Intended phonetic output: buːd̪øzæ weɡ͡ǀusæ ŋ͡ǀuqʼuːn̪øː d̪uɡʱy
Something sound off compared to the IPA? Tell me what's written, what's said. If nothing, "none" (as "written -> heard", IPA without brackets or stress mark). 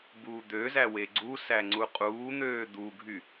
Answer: none